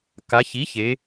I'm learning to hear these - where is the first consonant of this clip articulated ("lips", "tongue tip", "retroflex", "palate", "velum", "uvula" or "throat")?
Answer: velum